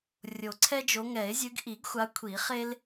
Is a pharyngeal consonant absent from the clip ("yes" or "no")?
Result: yes